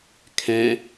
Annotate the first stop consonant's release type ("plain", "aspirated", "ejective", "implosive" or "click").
aspirated